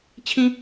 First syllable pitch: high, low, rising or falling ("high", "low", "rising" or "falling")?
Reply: high